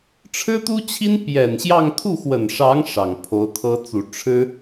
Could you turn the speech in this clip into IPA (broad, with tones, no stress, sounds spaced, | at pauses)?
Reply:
ʈ͡ʂʰ ɻ̩˥ t̪ u˥ t͡ɕʰ i˥ n p j ɛ˨˩ n ɕ j ɑ˥˧ ŋ t̪ʰ u˥˩ x w ə˨˩ n ʂ ɑ˧˥ ŋ ʂ ɑ˨˩ ŋ pʰ o˧˥ ʊ̯ t̪ʰ ɤ˥ t͡s u˨˩ ʈ͡ʂʰ ɻ̩˥